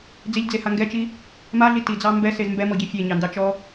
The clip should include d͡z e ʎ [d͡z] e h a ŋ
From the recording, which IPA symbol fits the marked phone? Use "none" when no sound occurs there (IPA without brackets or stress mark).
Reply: d͡z